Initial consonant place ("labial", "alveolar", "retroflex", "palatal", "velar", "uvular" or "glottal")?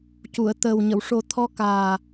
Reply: palatal